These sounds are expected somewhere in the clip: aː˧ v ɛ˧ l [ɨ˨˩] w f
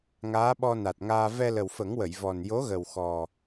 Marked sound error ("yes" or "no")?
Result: yes